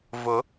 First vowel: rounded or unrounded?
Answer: rounded